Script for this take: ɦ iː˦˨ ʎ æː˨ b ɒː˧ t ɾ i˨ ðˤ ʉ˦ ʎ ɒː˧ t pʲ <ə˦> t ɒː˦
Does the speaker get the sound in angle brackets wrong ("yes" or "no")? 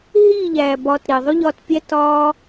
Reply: yes